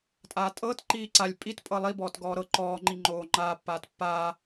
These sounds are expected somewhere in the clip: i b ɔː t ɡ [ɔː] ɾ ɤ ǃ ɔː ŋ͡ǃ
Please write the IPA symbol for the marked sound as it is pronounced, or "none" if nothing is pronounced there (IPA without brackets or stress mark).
ɔː